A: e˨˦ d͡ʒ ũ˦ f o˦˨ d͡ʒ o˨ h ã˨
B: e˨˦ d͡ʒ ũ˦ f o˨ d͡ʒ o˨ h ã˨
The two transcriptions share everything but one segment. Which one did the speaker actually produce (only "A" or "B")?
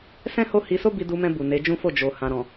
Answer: A